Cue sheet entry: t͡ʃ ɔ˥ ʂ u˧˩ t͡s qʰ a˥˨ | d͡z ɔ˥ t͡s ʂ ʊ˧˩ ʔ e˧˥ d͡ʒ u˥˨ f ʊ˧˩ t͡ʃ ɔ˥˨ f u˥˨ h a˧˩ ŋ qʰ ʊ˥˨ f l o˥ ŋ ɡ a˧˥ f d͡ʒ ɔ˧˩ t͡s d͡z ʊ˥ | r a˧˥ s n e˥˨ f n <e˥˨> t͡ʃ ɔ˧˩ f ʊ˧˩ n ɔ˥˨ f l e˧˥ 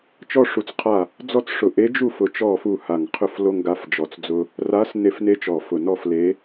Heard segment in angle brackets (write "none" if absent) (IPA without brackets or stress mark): e˥